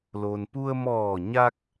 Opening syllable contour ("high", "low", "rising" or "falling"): low